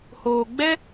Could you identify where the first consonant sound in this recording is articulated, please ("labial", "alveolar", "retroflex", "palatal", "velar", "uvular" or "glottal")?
glottal